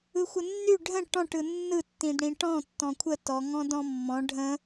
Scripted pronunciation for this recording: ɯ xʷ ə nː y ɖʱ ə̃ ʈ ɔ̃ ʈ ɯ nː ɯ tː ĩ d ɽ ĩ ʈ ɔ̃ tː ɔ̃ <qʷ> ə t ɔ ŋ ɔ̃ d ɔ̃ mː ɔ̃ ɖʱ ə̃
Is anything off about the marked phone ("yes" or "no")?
yes